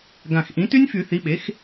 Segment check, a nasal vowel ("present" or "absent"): present